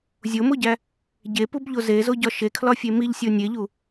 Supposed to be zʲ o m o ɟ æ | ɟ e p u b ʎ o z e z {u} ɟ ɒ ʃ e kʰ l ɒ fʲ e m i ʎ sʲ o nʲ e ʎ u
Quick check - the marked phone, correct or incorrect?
incorrect